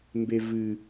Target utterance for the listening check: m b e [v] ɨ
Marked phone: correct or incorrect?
correct